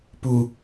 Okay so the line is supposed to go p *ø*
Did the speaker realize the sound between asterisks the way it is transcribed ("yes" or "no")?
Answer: no